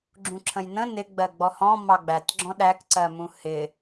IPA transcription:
ɡ͡ǁ ũ ǁʰ ə̃ j n ə̃ n ɪ ɡ͡b ɜ ɡ͡b ɔ h ɔ̃ m ɑ ɡ͡b æ t ɡ͡ǁ ɔ̃ ɗ æ k ǀ ɜ m ũ h ɪ

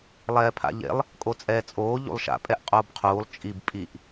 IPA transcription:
lˠ ɛː pʰ a̰ ʎ ḛ lˠ | kʼ o t͡sʼ ɛː t͡sʼ oː ʎ ṵ lˠ ʃ a̰ pʼ ɛ ʔ qʼ oː b qʰ uː lˠ t͡ʃʼ i b pʼ i ʔ

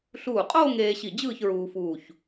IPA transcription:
ɬ uː˧˩ qʼ oː˥˧ ŋ eː˧ ɕ i˧˩ d͡ʑ ɯː˥˧ ç ɹ uː˧ f uː˧˩ ç

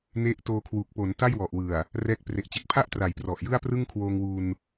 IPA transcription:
n e˦˥ ʔ t oː˧ kʰ w uː˨˩ k̚ p o˩˦ n t a˥˩ j w ɔ˨˩ ʔ w ɯ˨˩ a̯ | r ɛː˥˩ k̚ p r e˨˩ ʔ t͡ɕ e˨˩ k̚ pʰ a˥˩ ʔ t r a˩˦ j p r ɔ˨˩ ʔ j ɯ˥˩ a̯ p r ɯ˥˩ ŋ kʰ w oː˧ ŋ w uː˧ n

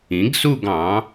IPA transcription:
ĩ˩˥ ɡ s u˥˧ ɡ ɑ̃˩˥

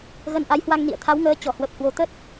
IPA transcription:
ɣ ə˧ n ʔ a˨˦ j h w a˧ ŋ n ḭ˧˨ ə̯ t̪ʰ a˨˦ w ŋ əː˨˦ t͡ɕ ɔ˧˩ h w ə˨˩ p̚ h w o˨˦ t̪ ə˦˥ t̚

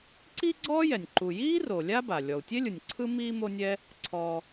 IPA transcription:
ǀ i˥ ɡ͡ǀ ɔː˥ j ɛ˩ nʲ ǃ u˩ j iː˥ r o˩ lʲ a˥ b a˩ lʲ ɔ˩ u̯ tʲ e˥ lʲ ɯ˩ nʲ ǀʰ ɯ˥ m iː˥ m o˥ nʲ ɛ˥ | ǀʰ ɔː˩

